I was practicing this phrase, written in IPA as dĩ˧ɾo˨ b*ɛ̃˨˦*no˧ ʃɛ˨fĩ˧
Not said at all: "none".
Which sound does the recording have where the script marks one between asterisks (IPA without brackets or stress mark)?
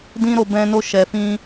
ɛ̃˧